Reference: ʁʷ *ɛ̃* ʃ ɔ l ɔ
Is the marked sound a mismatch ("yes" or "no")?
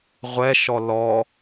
yes